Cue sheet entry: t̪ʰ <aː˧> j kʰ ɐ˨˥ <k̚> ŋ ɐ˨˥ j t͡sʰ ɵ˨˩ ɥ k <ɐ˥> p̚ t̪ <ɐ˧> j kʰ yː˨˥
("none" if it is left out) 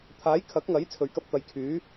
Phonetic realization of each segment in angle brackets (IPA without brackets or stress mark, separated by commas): aː˨˥, k̚, ɐ˧, ɐ˨˥